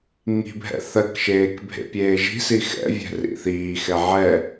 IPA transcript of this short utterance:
ŋ i̤ bʱ ɛ̰ θ ɜ k ʃ eː k bʱ ḛ pʲ eː ʒ i̤ s i x ɛ̰ vʲ ɛ̤ r ḭ θ iː x ɛ ʕ ɛ

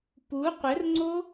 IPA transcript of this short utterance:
p u qʷ ɘ r ŋ͡ǀ o

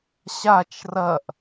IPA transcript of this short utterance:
ɕ a t͡ʃ r ɐ ʔ

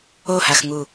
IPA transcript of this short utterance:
o h a x ŋ u

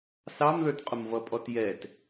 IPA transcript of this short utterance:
s ɑ m ð ə˞ t qʼ ʊ m v ʌ pʼ ɔ t j ɛ t

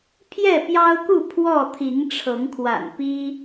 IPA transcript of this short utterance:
pʰ j ɛ˥˨ p j ɑ˦ ʊ̯ k u˥˨ pʰ w ɔ˥˨ t̪ʰ i˨˦ ŋ ʈ͡ʂʰ ɤ˨˦ ŋ kʰ w a̰˨˩ n p i˦

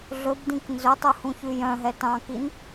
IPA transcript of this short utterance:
ɮ ɵ b d ĩ k n z ɵ tˤ u h ũ ç ʉ j œ̃ ɦ ɛ t ɑ̃ k i n

